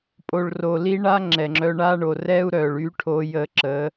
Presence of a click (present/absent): present